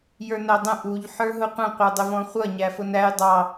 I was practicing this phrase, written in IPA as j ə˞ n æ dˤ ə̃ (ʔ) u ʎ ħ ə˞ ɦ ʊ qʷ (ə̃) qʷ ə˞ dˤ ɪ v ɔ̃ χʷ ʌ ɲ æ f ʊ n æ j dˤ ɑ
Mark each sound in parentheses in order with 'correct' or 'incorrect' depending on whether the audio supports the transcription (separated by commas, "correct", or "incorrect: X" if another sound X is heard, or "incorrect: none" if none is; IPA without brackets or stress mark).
correct, correct